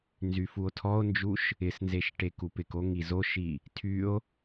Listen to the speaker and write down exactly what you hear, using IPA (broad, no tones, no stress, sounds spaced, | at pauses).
n z y f u o̯ tʰ ɔ o̯ n d͡ʒ u ʃ | ɪ s n z e ʃ ʈ e k u p ɪ k o ŋ i z o ʃ i | tʰ y o̯